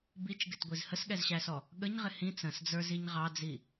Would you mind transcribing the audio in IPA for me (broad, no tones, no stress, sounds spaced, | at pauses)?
b i t͡ʃ ɡ ɪ t ɡʷ i z h ə s ɠ ɛ z ɕ æ s ɔ | ɠ ə ɲ ʁ ɪ h ĩ t͡s ə̃ s d͡z ə˞ z i ɲ ʁ ɑ d͡z i